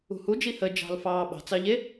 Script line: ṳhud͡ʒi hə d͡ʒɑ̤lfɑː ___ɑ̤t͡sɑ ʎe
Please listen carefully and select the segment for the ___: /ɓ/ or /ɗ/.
ɓ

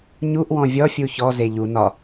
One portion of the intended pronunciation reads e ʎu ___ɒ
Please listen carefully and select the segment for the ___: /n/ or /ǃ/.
n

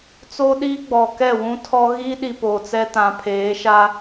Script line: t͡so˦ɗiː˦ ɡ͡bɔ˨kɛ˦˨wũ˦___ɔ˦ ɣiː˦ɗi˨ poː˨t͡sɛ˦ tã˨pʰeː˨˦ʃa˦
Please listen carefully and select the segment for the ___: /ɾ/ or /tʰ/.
tʰ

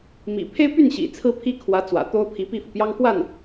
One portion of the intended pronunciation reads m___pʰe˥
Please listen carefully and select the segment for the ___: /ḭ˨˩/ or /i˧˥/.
ḭ˨˩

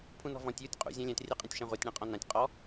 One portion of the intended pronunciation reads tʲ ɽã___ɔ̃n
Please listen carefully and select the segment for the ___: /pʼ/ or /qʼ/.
qʼ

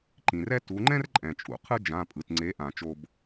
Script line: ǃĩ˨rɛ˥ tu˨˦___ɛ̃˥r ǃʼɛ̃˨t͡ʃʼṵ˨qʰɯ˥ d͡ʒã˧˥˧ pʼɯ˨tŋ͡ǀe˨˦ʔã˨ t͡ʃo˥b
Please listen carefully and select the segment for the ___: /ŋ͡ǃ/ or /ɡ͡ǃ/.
ŋ͡ǃ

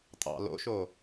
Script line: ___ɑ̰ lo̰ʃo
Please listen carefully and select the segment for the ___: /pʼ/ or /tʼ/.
tʼ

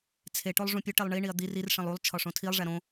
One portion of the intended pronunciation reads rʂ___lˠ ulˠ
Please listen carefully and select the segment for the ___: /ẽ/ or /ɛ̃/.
ẽ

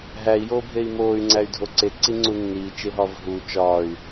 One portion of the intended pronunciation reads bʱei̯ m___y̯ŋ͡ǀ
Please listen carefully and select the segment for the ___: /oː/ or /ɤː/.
oː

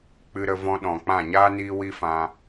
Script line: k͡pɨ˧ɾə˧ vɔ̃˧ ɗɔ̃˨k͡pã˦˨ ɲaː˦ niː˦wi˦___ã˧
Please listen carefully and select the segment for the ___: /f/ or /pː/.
f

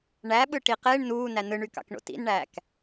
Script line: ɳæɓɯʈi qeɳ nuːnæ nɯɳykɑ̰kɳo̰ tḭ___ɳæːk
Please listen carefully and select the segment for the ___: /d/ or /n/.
n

